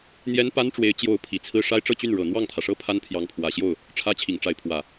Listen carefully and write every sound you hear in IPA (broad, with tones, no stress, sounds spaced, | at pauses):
n̪ j ɛ˥ n p a˥ n ʈ͡ʂ w e˧˥ ɪ̯ t͡ɕ j o˧˥ ʊ̯ pʰ i˨˩ t͡sʰ ɹ̩˥˩ ʂ a˥ ɪ̯ ʈ͡ʂ ɤ˥˧ t͡ɕ y˥˩ n ɻ ɤ˨˩ n̪ w ɑ˥˩ ŋ t̪ʰ ä˩ ʂ ɤ˥ pʰ a˥ n pʰ j ɑ˧˥ ŋ pʰ w ä˨˩ ɕ j o˥˩ ʊ̯ | ʈ͡ʂʰ ä˥ t͡ɕʰ i˨˩ ŋ ʈ͡ʂ a˧˥ ɪ̯ pʰ w ä˨˩˦